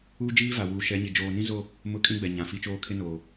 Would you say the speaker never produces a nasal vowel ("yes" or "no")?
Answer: no